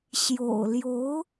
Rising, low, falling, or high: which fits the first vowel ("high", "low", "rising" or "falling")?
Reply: low